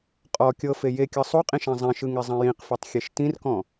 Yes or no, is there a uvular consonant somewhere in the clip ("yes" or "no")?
yes